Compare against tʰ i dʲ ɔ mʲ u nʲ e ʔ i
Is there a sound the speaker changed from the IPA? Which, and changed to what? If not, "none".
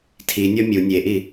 dʲ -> nʲ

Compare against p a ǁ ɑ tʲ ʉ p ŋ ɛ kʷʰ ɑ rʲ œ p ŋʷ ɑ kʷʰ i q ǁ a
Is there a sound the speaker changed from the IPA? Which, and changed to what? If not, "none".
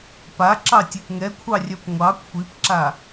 q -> p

